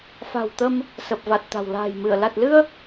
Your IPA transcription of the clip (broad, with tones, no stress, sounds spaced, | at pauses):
f a̤˨˩ w t̪ ə˧ m | s ə˨˩ p̚ v a˨˩ t̚ t̪ a̤˨˩ w l a̤ː˨˩ j m ɨ˧˩ ə̯ l a˨˩ t̚ l ɨ˧ ə̯